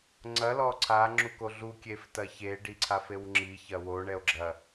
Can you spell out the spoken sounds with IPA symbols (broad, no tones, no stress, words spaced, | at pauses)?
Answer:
ŋ͡ǀɐ lɔǀʰa ŋ͡ǁukoɮu kʲeftɐçe ɖiǀʰafewŋ͡ǁi çɐwo ɳɛo̯ɡ͡ǁɐ